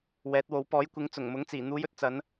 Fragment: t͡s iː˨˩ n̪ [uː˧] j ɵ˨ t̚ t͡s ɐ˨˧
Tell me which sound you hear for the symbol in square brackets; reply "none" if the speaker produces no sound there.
uː˨˧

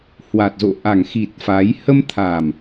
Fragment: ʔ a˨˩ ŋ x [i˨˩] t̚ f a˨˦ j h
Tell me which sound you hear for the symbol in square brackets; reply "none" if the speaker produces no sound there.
i˨˩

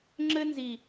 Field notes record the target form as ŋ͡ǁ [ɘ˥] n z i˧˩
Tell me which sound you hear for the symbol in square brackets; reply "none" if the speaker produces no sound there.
ɘ˥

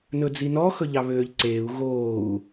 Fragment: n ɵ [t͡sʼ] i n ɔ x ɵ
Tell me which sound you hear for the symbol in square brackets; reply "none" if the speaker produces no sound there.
d͡z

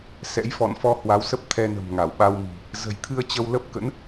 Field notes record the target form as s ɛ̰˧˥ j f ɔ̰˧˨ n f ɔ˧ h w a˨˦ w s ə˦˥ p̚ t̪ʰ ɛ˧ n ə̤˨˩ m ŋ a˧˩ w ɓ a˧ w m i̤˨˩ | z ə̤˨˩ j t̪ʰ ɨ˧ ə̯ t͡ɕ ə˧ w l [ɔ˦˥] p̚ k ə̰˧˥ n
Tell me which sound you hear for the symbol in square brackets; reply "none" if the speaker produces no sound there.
ə˦˥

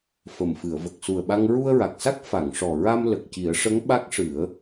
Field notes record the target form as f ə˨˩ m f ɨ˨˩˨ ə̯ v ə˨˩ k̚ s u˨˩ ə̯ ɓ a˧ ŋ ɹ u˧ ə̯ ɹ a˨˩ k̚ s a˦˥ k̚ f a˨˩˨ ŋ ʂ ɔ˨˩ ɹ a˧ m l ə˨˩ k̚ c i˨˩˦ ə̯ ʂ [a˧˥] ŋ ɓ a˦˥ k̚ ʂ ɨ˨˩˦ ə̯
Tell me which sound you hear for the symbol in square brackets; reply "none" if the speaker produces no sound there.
ə˧˥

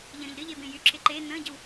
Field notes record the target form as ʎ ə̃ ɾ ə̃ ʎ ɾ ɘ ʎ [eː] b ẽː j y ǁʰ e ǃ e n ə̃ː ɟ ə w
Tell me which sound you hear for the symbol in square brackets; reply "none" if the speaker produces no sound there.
e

